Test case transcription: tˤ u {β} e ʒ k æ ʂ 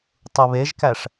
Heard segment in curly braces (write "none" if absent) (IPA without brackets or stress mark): β